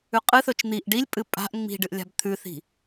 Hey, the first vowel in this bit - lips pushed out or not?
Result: yes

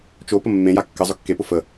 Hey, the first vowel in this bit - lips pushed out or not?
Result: yes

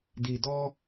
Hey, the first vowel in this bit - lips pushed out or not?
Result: no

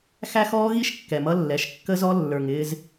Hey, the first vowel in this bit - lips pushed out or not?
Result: no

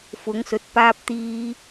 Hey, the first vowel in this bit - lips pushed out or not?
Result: yes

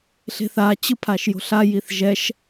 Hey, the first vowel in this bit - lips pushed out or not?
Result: no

